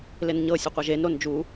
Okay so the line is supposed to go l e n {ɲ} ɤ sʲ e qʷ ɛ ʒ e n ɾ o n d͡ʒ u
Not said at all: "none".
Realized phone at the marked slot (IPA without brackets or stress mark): ɲ